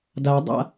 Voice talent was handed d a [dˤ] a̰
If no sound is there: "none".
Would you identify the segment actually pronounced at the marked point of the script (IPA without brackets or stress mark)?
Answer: dˤ